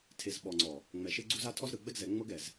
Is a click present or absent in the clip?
present